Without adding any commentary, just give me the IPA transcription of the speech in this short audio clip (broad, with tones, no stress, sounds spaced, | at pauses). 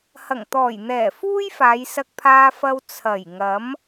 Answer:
h ɐ˨˩ ŋ t̪ ɔː˨˩ j n̪ ɛː˨˩ f uː˥ j f aː˨˧ j s ɐ˧ k̚ pʰ aː˧ f ɐ˧ w t͡sʰ ɐ˨˩ j ŋ ɐ˨˥ m